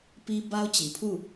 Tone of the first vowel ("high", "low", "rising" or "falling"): high